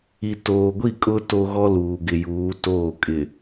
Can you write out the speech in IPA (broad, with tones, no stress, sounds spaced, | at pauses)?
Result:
i˨ t oː˨ ɡʷ i˦˨ kʼ ʊ˦ t o˦ ɣ ɔ˦ l uː˨ ɡ ɪ˨ j uː˨˦ t oː˦˨ kʼ ɪ˨